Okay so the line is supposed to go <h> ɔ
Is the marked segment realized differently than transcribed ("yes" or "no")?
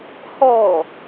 no